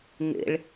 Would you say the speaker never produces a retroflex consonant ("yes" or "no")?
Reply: no